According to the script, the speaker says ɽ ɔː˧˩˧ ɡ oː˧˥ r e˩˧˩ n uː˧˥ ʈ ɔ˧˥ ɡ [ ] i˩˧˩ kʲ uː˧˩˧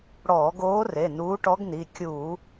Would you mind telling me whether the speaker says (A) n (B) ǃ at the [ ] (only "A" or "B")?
A